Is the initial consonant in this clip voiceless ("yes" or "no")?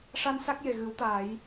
yes